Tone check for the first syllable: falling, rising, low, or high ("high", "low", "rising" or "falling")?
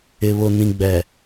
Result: low